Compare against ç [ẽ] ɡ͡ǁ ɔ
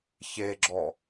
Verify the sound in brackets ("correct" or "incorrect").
incorrect